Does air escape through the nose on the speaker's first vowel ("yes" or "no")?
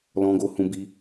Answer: yes